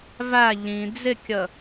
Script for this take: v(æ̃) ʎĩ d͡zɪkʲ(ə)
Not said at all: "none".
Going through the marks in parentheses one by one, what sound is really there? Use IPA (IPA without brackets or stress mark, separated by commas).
æ, ə